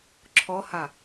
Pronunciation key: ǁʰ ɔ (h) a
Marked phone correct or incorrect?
correct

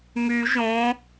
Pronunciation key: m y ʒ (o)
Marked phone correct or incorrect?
incorrect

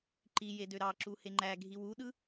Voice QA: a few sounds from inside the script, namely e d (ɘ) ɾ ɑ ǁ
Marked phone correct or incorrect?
incorrect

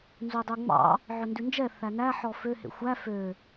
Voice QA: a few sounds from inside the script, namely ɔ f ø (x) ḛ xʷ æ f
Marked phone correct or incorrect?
incorrect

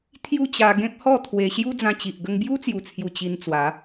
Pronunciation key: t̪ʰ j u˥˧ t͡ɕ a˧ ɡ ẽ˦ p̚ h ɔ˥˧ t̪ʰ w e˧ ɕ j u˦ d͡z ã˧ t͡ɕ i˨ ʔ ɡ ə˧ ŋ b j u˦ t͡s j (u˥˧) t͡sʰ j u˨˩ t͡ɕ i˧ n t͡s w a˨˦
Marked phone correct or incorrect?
incorrect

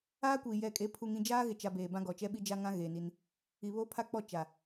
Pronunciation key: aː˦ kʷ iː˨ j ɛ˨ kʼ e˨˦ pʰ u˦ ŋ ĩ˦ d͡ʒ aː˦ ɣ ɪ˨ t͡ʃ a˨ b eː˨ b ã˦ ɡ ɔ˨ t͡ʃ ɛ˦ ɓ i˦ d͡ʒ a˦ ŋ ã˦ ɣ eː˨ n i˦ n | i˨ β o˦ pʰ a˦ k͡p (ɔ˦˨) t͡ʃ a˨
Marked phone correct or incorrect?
correct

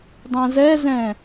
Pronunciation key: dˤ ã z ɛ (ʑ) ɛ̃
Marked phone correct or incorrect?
incorrect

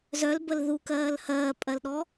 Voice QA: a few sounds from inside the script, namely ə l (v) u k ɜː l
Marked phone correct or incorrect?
incorrect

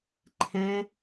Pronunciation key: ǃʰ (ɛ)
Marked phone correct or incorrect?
incorrect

